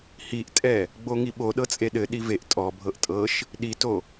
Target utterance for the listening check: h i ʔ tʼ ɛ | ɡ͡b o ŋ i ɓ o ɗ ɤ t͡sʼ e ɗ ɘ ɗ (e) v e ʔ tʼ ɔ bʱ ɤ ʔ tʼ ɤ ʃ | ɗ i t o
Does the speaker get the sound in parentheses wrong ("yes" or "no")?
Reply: yes